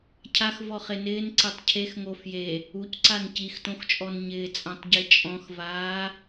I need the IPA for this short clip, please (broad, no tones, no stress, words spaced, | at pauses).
cʰaxvɔχe nɪːnǀetˤ cʰexŋo fje | ucǀan cixtõxt͡ʃʼɔn ɲɪːt͡sʼãtˤɟe t͡ʃʼɔ̃xvaː